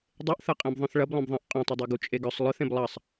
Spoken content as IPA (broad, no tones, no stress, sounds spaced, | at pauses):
dˤ e ʔ θ ɐ qʼ ẽ b ðˤ œ̃ θ ɭ ɐ b lˠ œ̃ b ðˤ ẽ ʔ qʼ œ̃ tˤ ɐ dˤ u ɡ u t͡ʃʼ e ɡ œ sˤ lˠ œ θ ẽ b lˠ ɐ sˤ